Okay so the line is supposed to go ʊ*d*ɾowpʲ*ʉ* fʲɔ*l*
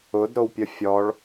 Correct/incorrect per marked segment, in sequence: correct, incorrect, incorrect

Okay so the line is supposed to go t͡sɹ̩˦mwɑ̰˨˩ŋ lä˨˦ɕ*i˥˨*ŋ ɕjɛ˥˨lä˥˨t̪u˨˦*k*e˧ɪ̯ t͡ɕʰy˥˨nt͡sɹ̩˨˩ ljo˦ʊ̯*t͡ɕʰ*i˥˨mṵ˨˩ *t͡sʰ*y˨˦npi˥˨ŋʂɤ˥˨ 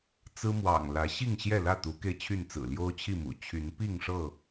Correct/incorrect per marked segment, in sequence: correct, correct, correct, incorrect

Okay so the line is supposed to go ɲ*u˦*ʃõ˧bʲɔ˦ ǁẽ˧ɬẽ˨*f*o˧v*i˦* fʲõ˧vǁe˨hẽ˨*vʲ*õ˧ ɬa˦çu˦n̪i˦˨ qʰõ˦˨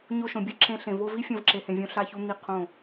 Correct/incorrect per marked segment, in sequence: incorrect, incorrect, correct, correct

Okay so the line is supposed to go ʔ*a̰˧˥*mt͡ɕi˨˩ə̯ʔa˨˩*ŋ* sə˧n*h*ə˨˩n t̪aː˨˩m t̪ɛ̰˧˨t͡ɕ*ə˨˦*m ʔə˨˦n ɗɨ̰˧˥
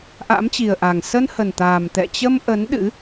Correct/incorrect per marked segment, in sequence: correct, correct, correct, incorrect

